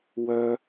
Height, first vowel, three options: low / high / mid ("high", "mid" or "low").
mid